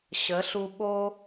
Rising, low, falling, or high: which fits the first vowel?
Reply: rising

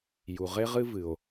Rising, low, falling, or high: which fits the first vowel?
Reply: low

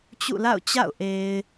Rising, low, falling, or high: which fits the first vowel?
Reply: falling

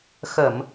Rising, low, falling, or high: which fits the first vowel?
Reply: low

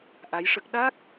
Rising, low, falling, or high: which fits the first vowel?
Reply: rising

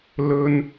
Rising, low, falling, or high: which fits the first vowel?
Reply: high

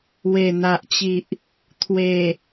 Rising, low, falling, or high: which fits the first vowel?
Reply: low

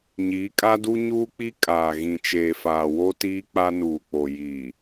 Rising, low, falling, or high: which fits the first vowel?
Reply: rising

